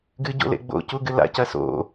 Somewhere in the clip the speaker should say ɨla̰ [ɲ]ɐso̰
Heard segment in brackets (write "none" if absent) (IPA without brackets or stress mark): c